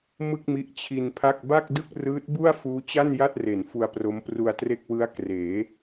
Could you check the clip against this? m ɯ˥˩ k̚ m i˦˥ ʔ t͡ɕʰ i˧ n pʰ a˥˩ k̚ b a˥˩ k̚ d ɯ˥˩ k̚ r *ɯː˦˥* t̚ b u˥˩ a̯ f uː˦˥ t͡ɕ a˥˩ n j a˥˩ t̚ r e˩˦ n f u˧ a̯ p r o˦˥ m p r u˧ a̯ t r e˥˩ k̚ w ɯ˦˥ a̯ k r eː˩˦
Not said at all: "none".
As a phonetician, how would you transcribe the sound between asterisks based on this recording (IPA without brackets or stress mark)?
ɯː˦˥